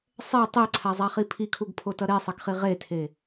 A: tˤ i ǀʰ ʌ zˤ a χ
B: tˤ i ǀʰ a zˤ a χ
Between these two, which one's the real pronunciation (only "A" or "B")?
B